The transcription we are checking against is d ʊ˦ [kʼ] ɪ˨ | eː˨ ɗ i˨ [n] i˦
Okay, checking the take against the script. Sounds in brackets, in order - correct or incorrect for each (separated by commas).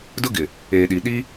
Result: incorrect, incorrect